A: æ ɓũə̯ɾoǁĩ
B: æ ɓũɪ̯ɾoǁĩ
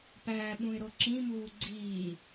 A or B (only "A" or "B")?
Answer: B